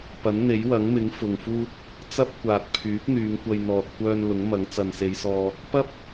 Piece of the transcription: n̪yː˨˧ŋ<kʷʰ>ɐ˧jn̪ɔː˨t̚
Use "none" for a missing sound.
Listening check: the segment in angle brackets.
kʷ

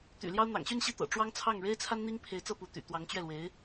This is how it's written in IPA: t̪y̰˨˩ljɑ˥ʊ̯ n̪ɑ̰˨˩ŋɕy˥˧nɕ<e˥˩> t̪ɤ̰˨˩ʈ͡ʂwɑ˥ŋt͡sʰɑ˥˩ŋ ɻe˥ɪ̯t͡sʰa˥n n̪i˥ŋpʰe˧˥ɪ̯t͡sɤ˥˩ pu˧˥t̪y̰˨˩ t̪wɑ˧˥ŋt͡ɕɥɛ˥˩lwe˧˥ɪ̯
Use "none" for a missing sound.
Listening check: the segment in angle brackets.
i˥˩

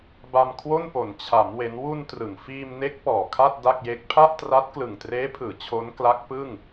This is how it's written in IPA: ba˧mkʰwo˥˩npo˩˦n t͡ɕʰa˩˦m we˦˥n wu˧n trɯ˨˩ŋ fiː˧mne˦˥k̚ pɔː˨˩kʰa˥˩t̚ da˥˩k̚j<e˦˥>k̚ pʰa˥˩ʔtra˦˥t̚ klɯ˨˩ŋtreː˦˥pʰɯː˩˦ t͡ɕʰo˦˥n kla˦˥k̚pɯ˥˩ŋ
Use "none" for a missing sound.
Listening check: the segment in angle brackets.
e˦˥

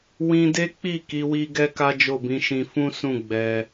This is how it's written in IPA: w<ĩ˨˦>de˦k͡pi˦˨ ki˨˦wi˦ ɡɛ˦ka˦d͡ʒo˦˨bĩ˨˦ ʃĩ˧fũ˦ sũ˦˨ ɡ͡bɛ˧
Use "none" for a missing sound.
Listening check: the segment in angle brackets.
ĩ˧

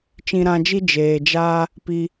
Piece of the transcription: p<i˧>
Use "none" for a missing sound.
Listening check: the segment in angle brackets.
i˧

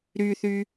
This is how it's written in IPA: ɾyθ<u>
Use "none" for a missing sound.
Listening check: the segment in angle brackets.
y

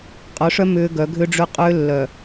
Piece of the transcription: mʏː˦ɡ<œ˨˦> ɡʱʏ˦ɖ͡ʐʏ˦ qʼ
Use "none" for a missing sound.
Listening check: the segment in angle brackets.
œ˨˦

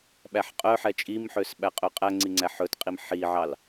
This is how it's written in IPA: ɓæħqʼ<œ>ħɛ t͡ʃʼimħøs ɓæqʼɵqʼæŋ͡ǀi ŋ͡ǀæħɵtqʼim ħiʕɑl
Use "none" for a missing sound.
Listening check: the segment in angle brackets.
œ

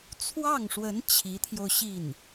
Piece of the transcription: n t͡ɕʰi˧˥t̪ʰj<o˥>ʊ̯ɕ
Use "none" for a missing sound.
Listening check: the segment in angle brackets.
o˧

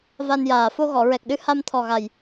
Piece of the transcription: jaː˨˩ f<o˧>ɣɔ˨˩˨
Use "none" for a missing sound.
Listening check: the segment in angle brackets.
o˧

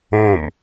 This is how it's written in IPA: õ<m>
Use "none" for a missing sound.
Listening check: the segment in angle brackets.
m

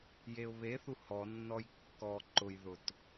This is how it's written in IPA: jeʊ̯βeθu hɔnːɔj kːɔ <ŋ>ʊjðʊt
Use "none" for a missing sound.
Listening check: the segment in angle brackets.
ǃ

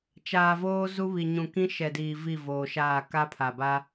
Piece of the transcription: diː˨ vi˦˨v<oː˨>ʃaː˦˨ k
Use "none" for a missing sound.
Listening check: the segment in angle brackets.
oː˨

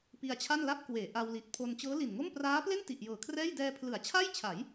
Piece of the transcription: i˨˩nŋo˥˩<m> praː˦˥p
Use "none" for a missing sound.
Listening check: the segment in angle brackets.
m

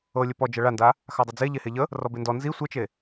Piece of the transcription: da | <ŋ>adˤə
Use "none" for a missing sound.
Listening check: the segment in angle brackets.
x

